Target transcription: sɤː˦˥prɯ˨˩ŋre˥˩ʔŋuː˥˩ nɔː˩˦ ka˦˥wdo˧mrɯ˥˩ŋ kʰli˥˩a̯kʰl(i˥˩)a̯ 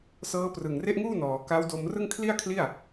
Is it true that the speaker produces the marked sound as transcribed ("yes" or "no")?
yes